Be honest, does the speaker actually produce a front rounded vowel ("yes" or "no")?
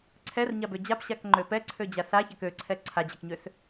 yes